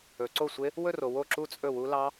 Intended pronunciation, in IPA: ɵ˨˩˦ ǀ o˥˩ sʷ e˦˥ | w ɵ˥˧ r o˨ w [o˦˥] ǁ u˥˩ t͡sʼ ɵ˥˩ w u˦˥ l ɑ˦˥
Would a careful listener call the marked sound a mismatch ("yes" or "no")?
yes